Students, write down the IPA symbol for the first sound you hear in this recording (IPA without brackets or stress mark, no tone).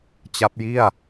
t͡ɕ